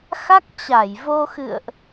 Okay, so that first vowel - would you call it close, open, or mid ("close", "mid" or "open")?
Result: open